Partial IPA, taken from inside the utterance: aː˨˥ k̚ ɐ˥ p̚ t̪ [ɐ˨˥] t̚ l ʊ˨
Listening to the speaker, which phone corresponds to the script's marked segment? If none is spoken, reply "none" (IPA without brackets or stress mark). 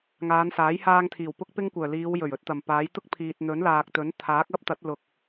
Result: ɐ˨˥